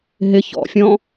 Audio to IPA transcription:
ɦ ɪ ç ɔ̰ fʲ ɔ̃

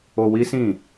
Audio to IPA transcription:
o˧ w i˦ s ĩ˦˨

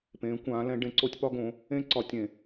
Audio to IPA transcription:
p ẽː˨˦ kʷ ãː˨˦ l ɛ̃˨˦ ɖ ẽ˨˦ ǀ o˦˥ tʲ p ɒ˦˥ ɡ õ˨˦ | ẽ˦˥ ǀ ɒ˨˩˦ tʲ ẽ˨˩˦

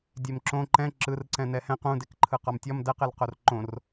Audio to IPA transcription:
dʲ e m ǁ õ ǃ ɛ̃ ǁ ɯ r ǀ ɛ̃ n ɛ h ɛ̃ q ũ d e k ǃʰ ɯ q ɒ m tʲ ɒ m d ɛ q ɛ l q o r ǃ õ r

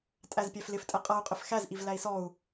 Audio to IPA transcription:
tʼ æ z pʲ æ f l ɪ f tʼ ɛ qʼ ʌ u̯ qʼ ɪ f x æ z ʔ i v l æ i̯ s ɔ u̯

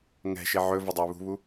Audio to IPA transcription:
ŋ ɛ̤ ʃ ɪ ʕ ɵ v ɵ dˤ ə˞ β ṳ β u

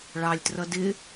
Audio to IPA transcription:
ɭ ɑ lʲ t r ʌ d ɪ

